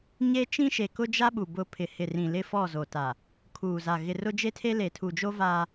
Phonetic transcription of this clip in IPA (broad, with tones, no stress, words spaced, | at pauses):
ɲe˦ t͡ʃĩ˦ʃe˨kʊ˦ d͡ʒa˦ɓu˨ bʊ˨ pʰɪ˨hɪ˨rĩ˨ lɪ˦fɔ˦˨zo˨ta˨ | kʰuː˨za˨ ɣɪ˨rʊ˦d͡ʒe˦tʰe˦ le˨tʰu˨d͡ʒo˦ vaː˦